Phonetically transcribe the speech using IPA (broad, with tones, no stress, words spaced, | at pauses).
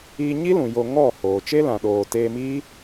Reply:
iː˧ɲi˦ lũ˨ jo˧ŋɔ˦˨ hoː˨ t͡ʃe˦ lã˨ɗoː˨ teː˧miː˦